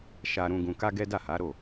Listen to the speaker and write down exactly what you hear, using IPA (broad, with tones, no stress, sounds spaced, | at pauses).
ʃ a˧ ɾ ũ˧ ɡ ũ˧ k a˦ ɡ ɛ˦ d a˦˨ h a˨˦ ɾ o˦˨